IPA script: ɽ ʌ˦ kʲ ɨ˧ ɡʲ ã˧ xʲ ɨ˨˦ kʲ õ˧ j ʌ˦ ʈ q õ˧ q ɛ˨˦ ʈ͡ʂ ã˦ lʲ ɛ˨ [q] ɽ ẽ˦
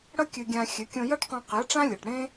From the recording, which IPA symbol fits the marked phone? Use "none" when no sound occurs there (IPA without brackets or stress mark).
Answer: ʈ